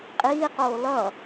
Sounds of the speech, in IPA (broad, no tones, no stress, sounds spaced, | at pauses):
qʼ iː q oː l ʌ